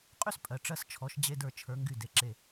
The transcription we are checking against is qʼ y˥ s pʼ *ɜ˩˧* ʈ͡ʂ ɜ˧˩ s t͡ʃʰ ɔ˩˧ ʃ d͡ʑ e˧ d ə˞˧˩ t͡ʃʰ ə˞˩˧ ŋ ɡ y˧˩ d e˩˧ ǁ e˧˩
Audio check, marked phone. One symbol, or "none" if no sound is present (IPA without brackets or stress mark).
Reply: ɜ˩˧